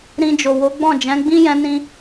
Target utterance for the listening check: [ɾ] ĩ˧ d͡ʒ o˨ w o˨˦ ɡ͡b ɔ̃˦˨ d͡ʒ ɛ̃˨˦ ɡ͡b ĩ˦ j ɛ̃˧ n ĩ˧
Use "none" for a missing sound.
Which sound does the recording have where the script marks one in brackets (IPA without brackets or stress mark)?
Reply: ɾ